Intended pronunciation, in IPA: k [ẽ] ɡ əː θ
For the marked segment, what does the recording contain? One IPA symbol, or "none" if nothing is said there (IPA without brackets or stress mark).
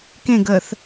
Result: ẽ